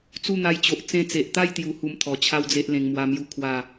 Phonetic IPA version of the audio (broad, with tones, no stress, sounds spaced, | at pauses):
t͡s u˥˧ n̪ a˧ j t͡ɕ o˨ ʔ t͡s ẽ˧ t͡s e˨ ʔ t̪ a˥˧ j t̪ j u˧ h u˧ m t̪ʰ ɔ˨˩ t͡ɕʰ a˦ w d͡z e˦ ʔ l ẽ˧ ŋ m w a˦ m j u˥˧ kʰ w a˥˧